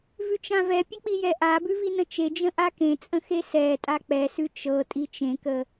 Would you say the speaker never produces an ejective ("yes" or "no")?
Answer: no